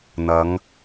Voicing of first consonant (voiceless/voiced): voiced